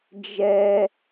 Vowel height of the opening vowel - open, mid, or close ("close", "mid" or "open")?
mid